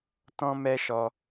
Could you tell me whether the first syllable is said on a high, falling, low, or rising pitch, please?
high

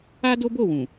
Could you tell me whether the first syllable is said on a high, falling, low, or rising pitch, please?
high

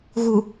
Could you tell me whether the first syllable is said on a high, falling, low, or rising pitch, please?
low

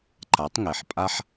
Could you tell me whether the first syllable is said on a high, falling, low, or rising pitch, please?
rising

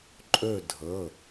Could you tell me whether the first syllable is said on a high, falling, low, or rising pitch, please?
falling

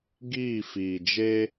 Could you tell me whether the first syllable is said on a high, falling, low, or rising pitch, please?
falling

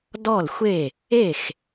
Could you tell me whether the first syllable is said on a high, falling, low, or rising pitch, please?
falling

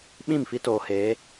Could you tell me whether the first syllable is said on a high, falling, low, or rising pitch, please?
falling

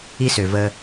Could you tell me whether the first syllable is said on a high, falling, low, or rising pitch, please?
high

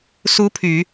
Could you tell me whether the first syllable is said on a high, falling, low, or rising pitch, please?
rising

